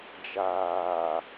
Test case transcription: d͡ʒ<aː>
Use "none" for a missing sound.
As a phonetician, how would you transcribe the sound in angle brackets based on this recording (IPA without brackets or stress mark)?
aː